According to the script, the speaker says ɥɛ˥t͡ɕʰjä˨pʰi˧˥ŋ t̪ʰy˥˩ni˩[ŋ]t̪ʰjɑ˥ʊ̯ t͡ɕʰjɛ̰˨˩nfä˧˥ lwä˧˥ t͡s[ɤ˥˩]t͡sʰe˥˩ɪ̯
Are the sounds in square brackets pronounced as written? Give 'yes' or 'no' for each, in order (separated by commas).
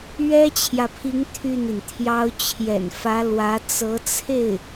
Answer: no, no